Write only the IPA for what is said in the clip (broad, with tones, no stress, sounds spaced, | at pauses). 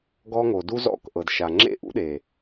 ɡ ɔ˦ ŋ o˨ d u˦ z ɔ̰˦˨ k ʔ ɤ˨ d ʃ a˨ ŋ͡ǁ ḛ˦ ʔ ṵ˦ ɗ e˨